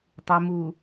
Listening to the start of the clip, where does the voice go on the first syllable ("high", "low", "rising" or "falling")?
low